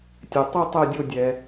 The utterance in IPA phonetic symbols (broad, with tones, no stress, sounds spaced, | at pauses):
tʲ ɛ˩ tˤ ɛ˦˨ tˤ ɛ˦˨ dʲ o˦˨ dʲ ɛ˩